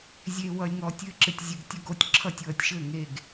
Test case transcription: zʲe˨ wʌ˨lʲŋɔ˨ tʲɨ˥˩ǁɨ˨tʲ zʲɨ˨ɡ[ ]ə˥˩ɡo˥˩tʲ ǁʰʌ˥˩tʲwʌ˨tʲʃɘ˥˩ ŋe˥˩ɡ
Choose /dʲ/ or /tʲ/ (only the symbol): tʲ